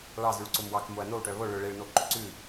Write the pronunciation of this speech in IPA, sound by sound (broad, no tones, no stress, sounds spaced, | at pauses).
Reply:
ɭ ɑ z y ɭ ǀ o m w ɑ k m o ɐ̯ n o w ʈ œ β o ɭ ɵ ɭ e ɭ n o ǃ ø ǀ ʉ